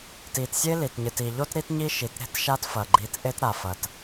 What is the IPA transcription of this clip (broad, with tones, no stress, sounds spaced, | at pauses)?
t i˨ t sʲ e˦ l i˨ t ɲ ɨ˨ t i˨ ʎ o˦ t ɾ i˦ t ɲ i˦ ʃ i˨ t ɾ e̤˦ t ʃ a˦ t f ɐ˨ ɡ͡ǃ i˨˦ t ʔ e˦ t ɾ a˨ f ɐ˨ t